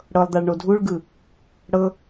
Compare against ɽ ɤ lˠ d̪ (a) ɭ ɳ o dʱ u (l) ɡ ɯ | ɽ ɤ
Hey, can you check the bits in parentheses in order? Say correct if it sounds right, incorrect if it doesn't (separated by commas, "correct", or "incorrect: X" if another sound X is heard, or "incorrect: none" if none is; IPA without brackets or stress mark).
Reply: correct, incorrect: ɭ